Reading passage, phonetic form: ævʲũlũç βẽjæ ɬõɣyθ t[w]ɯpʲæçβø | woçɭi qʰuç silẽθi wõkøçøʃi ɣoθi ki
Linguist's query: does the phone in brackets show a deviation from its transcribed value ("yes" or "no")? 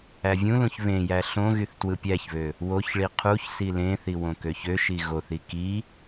no